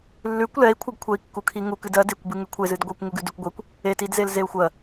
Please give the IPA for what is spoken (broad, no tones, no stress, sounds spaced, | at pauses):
lː ʉ kʷ l ɛ i̯ kʷʰ ɨ ɡ kʷʰ ɛ i̯ kː u kʰ i ŋ u k ɨ d ɜ d e kʷ b ɨ ŋ ʉ kʷʰ e z ɨ d ɡʷ ɛ kʷ ŋ u ɡ ʉ d ʉ kʷ ɡʷ e kʷ | e t i d z e l z e u̯ xʷ ɜ